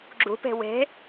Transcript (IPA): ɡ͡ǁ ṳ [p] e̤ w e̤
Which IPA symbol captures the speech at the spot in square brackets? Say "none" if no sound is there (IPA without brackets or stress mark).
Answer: p